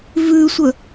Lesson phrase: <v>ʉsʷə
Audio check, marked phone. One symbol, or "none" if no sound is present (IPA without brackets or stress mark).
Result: v